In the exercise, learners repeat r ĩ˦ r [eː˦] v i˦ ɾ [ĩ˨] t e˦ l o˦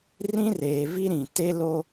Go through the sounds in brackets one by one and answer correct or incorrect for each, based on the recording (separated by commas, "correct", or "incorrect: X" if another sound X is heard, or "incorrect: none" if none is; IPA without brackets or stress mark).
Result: incorrect: eː˨, correct